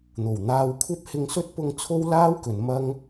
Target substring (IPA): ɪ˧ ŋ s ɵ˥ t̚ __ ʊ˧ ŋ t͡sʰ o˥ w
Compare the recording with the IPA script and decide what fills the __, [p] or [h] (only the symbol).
p